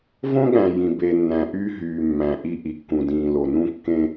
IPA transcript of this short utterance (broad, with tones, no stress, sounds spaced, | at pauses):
v õ˦ ɠ æ̃˨ j ĩ˨ b e˨ nː æ̃˨ ʔ yː˦ ɦ yː˨ mː æ̃˨ ʔ i˦ ʔ i˨ kː ũ˨ d ĩː˨ l o˨ n ũ˦ kː ẽ˦